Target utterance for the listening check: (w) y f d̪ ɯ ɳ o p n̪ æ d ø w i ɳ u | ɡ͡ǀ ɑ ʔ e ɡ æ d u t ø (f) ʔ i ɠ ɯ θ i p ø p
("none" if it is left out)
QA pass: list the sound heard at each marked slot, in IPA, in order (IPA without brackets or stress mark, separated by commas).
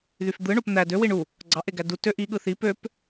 ð, none